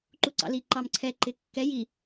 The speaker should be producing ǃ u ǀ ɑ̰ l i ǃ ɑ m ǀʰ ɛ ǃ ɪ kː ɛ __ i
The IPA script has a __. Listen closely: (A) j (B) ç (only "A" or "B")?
A